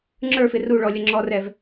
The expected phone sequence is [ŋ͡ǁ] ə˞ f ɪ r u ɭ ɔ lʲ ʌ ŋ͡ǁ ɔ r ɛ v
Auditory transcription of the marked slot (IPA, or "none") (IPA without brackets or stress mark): ŋ͡ǁ